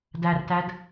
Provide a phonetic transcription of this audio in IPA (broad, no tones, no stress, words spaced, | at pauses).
dærtæd